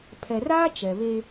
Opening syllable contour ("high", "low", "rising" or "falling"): low